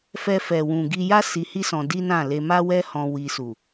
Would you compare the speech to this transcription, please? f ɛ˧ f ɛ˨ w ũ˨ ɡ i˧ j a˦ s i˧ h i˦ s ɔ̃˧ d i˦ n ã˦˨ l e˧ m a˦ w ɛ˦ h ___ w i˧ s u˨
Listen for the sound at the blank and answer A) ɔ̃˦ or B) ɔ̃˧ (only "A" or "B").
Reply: B